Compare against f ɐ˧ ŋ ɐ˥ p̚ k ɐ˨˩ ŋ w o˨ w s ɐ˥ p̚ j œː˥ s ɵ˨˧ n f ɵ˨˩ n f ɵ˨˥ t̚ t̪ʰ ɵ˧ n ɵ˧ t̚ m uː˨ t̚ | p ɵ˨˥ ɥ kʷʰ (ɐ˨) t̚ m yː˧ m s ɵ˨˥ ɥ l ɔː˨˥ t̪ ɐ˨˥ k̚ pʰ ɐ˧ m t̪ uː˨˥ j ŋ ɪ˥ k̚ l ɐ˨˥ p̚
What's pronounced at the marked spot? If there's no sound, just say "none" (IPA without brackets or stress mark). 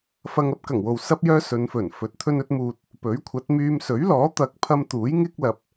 ɐ˨˥